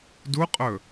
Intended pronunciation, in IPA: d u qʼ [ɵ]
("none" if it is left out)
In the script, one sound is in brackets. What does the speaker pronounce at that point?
ɵ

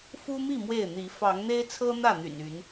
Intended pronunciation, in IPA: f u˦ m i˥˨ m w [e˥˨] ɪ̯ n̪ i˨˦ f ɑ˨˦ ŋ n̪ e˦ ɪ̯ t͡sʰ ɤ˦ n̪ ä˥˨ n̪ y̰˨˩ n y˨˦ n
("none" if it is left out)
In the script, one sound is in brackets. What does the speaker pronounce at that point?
e˥˨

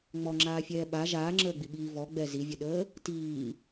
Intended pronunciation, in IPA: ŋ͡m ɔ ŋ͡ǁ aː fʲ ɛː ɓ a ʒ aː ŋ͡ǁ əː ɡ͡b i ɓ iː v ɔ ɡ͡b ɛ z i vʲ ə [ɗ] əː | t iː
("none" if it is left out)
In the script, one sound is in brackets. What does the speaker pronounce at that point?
ɗ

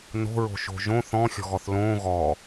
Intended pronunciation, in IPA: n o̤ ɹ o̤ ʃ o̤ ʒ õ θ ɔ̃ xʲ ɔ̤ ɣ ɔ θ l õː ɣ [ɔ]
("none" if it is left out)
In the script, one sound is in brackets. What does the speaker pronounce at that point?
ɔ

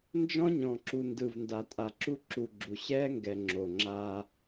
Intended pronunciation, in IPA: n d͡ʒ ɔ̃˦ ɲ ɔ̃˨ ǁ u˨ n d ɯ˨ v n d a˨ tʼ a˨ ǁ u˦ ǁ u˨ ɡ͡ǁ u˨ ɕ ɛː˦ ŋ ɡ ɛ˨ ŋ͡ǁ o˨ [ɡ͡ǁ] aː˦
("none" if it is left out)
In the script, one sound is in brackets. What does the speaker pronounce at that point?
ŋ͡ǁ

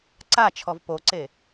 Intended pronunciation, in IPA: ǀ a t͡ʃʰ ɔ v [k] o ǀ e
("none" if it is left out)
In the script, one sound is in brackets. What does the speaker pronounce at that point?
p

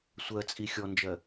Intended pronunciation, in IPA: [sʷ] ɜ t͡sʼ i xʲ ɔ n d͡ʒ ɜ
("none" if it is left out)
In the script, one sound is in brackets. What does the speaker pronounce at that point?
sʷ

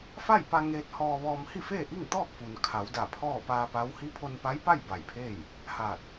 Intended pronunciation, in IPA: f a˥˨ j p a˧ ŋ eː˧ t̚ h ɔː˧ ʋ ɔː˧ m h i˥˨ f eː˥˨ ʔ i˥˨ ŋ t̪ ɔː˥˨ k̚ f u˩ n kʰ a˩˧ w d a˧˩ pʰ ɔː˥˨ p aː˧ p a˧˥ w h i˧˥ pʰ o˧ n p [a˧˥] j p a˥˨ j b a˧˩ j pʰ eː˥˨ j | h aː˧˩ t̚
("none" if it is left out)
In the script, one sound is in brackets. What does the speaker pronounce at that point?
a˧˥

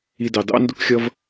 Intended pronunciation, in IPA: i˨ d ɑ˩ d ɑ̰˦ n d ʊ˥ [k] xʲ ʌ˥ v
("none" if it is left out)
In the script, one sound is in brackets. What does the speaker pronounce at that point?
k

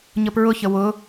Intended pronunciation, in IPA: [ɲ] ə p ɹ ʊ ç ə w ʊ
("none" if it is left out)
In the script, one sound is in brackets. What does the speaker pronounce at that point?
ɲ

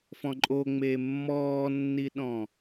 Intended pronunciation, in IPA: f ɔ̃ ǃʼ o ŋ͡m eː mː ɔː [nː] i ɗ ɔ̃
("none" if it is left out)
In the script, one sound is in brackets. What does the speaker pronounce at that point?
nː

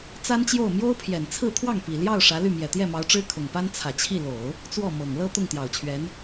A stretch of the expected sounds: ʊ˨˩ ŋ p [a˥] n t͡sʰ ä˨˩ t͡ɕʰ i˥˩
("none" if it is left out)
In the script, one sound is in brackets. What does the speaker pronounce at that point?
a˥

